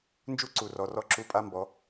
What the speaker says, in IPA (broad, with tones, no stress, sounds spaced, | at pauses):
n d͡ʒ u˦ ǀ u˨ r ɔ˨ r ɔ˧ ǁ u˧ pʼ a˦ m b ɔ˨˦